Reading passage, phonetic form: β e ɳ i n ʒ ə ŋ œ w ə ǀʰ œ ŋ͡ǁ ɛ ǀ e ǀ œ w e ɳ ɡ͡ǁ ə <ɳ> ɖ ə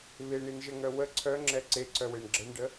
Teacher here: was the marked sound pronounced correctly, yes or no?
yes